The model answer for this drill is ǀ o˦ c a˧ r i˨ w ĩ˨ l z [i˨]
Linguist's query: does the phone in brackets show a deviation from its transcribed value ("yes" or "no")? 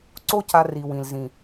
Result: yes